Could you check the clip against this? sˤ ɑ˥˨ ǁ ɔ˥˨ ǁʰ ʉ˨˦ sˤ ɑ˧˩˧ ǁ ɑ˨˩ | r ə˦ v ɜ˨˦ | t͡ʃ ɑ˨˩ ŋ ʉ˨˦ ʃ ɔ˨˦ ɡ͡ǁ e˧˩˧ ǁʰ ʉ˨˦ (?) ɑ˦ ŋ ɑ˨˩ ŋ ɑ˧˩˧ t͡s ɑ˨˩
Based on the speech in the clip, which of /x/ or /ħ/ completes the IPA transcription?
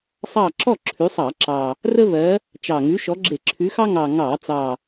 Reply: x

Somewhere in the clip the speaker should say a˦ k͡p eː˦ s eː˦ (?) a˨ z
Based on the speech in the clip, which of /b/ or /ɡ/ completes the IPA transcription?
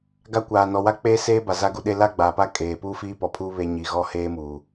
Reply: b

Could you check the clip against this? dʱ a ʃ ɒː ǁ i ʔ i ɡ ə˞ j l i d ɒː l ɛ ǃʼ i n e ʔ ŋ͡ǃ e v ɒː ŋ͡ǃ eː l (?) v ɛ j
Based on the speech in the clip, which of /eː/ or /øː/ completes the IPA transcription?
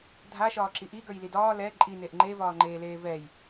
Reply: eː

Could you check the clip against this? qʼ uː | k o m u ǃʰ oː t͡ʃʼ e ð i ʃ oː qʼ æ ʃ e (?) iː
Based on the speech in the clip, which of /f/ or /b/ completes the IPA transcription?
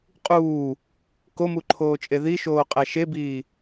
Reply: b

